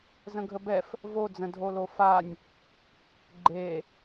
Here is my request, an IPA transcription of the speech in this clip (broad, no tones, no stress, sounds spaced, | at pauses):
z ə̃ ɡʱ ə b ɛ f | v o d͡z ə̃ dʱ o l o f a nʲ | ɡ͡ǃ e